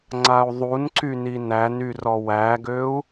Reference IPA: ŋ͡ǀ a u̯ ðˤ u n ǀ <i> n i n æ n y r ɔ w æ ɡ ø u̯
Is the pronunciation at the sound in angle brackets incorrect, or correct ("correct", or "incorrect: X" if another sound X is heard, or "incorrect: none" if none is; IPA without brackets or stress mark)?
incorrect: y